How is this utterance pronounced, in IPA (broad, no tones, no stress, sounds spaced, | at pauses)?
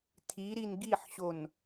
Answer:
tʰ i ɾ i n ɡ i ħ ɕ o n